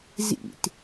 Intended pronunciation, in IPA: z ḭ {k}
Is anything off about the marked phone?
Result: yes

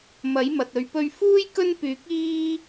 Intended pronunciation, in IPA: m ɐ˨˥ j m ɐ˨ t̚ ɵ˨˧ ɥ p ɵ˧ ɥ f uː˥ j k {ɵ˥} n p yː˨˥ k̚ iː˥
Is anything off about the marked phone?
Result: no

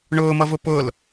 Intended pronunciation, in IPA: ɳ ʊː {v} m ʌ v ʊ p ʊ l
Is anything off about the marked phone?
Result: yes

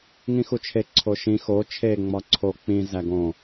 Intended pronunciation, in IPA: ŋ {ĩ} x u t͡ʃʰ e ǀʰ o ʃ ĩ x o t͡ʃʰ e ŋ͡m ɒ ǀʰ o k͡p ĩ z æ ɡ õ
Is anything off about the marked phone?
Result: no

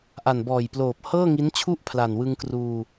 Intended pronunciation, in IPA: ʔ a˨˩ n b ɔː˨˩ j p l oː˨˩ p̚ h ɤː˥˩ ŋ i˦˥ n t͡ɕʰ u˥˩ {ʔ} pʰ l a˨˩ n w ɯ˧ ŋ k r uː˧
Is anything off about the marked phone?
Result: no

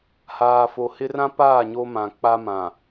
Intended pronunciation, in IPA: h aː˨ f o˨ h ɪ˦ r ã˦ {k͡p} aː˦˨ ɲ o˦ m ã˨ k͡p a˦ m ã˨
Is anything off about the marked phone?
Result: yes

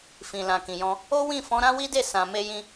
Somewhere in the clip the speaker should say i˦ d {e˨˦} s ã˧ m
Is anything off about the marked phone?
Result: yes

